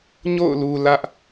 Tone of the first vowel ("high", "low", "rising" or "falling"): falling